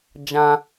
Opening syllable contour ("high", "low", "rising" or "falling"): high